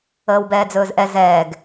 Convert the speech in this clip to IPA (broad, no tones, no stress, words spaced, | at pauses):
əːwbɛːd͡zɵːzʔɛ zɛːɡ